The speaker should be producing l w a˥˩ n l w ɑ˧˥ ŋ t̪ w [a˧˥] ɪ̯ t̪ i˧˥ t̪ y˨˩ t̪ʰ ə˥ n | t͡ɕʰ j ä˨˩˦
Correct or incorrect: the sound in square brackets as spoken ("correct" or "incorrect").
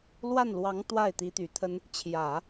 incorrect